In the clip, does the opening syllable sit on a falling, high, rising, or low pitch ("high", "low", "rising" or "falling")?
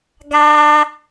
high